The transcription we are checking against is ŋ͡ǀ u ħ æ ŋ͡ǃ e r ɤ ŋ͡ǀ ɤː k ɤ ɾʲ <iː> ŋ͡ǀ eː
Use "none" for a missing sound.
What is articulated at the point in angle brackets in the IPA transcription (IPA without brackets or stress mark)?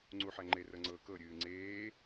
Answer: ɨː